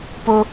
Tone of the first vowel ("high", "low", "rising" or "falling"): high